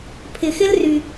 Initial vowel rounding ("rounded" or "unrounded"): unrounded